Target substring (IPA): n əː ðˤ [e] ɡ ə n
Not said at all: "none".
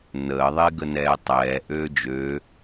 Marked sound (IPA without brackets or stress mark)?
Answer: e